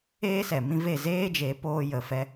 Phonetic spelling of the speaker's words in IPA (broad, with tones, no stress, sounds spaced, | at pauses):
eː˦ s ɛ˨ m ĩ˦ v e˦˨ z eː˦ d͡ʒ e˨˦ p oː˧ j ə˨ f ɛ˧